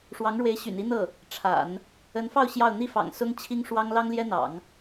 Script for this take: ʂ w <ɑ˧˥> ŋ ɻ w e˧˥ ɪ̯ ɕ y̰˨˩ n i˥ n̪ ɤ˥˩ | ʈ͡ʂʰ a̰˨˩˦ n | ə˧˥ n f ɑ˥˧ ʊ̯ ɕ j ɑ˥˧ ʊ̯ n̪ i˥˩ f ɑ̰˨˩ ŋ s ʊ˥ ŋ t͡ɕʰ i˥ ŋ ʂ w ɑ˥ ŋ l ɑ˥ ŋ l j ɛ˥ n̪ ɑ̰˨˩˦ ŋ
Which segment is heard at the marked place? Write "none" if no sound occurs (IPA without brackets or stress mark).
ɑ˧˥